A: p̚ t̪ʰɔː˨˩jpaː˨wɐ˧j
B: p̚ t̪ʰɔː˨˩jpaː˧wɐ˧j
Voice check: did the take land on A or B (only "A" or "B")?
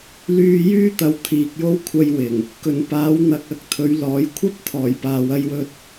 A